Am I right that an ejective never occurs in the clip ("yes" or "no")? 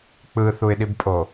no